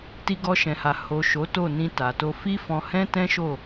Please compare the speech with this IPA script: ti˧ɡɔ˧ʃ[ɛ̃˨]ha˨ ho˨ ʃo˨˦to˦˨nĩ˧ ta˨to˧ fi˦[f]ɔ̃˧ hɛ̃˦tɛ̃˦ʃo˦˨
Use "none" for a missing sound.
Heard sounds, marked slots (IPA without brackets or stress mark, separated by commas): ɛ̃˨, f